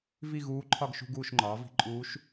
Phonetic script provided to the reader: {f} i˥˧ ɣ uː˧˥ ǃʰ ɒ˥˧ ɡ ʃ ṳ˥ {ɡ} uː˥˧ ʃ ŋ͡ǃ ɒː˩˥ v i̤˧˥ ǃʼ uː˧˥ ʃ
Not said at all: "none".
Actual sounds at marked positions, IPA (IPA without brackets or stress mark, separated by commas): v, ɡ